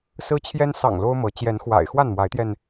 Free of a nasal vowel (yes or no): yes